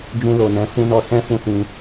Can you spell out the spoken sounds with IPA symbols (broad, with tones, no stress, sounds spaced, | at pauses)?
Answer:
d͡ʒ ũ˧ l o˨ n ɛ̃˨˦ f ũ˧ n ɔ˧ s ɛ̃˦ f ũ˦˨ s ĩ˧